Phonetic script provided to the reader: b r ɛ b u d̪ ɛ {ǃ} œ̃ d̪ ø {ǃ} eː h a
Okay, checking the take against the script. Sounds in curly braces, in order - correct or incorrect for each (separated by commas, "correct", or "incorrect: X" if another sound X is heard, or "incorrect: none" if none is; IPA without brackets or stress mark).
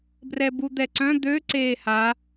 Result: incorrect: ǀ, incorrect: ǀ